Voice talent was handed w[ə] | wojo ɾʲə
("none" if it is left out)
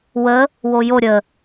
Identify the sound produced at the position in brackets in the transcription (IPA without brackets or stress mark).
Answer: ə